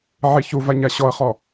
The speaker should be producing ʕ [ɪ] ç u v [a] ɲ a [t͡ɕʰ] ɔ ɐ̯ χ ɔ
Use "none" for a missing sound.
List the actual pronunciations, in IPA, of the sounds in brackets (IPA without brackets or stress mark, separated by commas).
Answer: i, a, ɕ